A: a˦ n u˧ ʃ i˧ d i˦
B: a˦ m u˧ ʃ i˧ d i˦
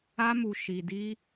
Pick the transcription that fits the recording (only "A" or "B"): B